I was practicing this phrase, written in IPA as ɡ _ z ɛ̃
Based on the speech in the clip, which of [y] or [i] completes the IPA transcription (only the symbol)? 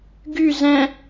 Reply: y